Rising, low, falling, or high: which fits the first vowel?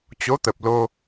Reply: rising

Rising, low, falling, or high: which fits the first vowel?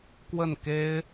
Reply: falling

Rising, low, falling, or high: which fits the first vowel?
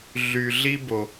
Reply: low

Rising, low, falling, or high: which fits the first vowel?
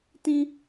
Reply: high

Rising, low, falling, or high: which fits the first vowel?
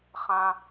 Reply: high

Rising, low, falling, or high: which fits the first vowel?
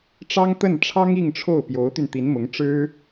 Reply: high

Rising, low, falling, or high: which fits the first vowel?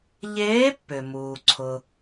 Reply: rising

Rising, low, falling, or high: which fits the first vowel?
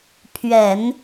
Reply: low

